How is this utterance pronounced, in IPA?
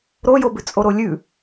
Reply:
ɾojobʉ t͡sʼoɾolʲʉ

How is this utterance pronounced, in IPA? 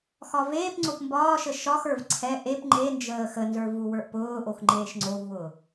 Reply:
xɒveːpŋ͡ǀop mbɒːʃə ʃɒxə˞v ǀʰɛ ʔep ŋ͡ǃend͡ʒəː xənzə˞ vuwə˞ʔpʊːʔox ŋ͡ǃeːʃŋ͡ǀovwʊː

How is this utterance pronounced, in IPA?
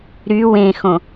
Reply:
ɾy wẽxõ

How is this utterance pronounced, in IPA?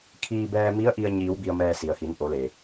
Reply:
kʰiː˧bɛː˧mi˧˥ə̯ ʔi˧ə̯ɲiː˩˧w bi˧ə̯mɛː˧ si˩ə̯hi˩˧nʔo˩˧ le˩

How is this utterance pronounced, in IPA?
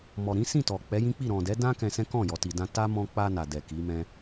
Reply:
mɔ˨ɾĩ˨˦sĩ˦˨ tɔ˨ k͡pɛ˨˦jĩ˦k͡pi˦˨ɾɔ̃˨ dɛ˨˦dã˦ kɛ̃˧sɛ̃˦ kɔ̃˦˨jɔ˨ ti˨dã˧ ta˦mɔ̃˧k͡pa˧ na˨dɛ˨ ki˨˦mɛ̃˦

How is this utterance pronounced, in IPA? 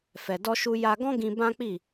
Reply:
fɛ˨dɔ˧ʃu˧ ja˧ɡɔ̃˦ ɡĩ˧ bã˦k͡pi˦˨

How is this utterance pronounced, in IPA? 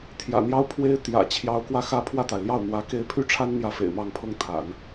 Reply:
t̪ʰjä̰˨˩n̪jɑ˥ʊ̯pʰwe˥ɪ̯ t̪jä̰˨˩ t͡ɕʰjɑ˧˥ʊ̯kwä˥˩xä˥ pʰwä˥˩t̪a˩ɪ̯ljɑ˥˩ʊ̯ n̪wä˧˥ ke˥˧ɪ̯ pʰy˥˩ʈ͡ʂʰa˥n n̪jä˥˩fḛ˨˩ɪ̯mɑ˥˧ŋpʰɤ˥˩ŋ t̪ʰa̰˨˩˦n

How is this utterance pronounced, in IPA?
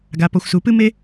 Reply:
ɡa˩pɔ˩xʷsu˩pɨ˥ me˥

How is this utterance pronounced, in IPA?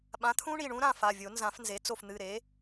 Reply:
ɓã˩˥t̪ʰũ˦˥ ɳi˩˧˩ɳũ˦˥ɾã˥˨fa˩˧˩ vʲo˨˩˦nzã˨˩˦fnze˩˥ t͡so˧˩fn̪ɨ˩˧˩ɾe˩˥

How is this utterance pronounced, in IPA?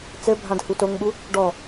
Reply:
t͡sɘbʱãd hutoŋɓu | ɖɔ

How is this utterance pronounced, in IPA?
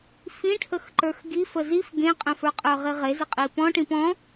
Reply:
fĩʈʰəxǃə˞x ɡi fəzif ɡẽqʼə̃fə˞qʼə˞ ʁiʁezɪ qʼipɔ̃ʈĩ pɔ̃

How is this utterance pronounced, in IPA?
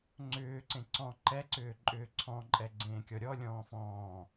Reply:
ŋ͡ǀʏːǀẽ ǀɔ̃ ǃɛǀʏː ǃʼʏːǀʰɔ̃ ǃʼɛɡ͡ǀẽːkʲɔɾʲɔ lʲɔ̃ːfɔ̃ː

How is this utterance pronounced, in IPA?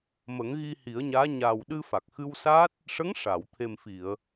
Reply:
mə˨˩˦ŋɣi˧ hi˨˩˦ə̯ɲaː˧˥ ɲaː˨˩wɗɨ˧ fa˨˩k̚xɨ˧wsaː˦˥t̚ | ʂə˧˥ŋʂa˨˩˨w t̪ʰe˨˩mfi˨˩˨ə̯

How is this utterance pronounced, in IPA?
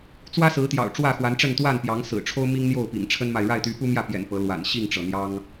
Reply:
t͡swä˦sɹ̩˨˦ t̪jɑ̰˨˩ʊ̯ʈ͡ʂwä˥˨xwa˨˦nʈ͡ʂə˥˨n t̪wa˥˨npjɑ˨˦ŋ sɹ̩˨˩ʈ͡ʂʰo˦ʊ̯ mi˦ŋn̪jo˥˨ʊ̯pḭ˨˩ŋ ʈ͡ʂʰə˦nma˨ɪ̯ ɻa˥˨ɪ̯t̪y˨˦pu˦mjä˥˨ pjɛ̰˨˩n pɤ˨˦lwa̰˨˩n ɕi˥˨ŋʈ͡ʂɤ˩ n̪jɑ˦ŋ

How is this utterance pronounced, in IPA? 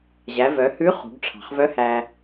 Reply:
ʑæ˩˧vœ˩˧hʉ˧˥ χṳ˩˧ɡʈ͡ʂʰɑ̤˩χvœ˧˥ hæ˩

